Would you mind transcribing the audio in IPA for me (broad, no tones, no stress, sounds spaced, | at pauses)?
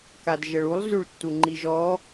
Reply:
k a d ʒ ə ɭ u lˠ z ʉ ɭ tː u ŋ͡ǃ i ʒ ɔ